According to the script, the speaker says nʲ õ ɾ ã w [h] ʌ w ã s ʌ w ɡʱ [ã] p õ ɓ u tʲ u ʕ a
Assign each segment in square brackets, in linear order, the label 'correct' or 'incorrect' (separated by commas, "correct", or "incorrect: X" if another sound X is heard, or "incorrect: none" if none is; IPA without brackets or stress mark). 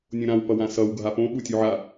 incorrect: p, incorrect: a